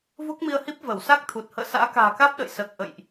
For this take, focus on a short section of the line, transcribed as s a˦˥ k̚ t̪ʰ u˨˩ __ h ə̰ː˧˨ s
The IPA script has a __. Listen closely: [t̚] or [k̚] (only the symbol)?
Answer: t̚